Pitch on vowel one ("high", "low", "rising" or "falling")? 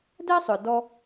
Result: high